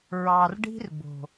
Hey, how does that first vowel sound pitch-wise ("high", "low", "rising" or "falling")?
low